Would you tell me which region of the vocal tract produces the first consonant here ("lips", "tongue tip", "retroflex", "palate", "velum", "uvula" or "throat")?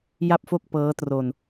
palate